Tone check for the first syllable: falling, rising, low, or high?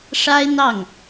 high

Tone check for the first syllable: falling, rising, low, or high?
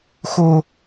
high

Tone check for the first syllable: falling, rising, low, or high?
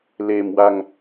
low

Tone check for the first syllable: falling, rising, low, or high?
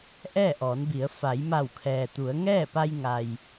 falling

